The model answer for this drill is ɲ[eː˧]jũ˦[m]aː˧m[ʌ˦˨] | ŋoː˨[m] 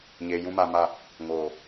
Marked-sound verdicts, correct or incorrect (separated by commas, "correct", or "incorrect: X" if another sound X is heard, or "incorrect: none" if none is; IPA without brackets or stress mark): correct, correct, incorrect: a˦˨, incorrect: none